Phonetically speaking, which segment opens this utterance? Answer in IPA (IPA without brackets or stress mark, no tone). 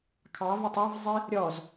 kʰ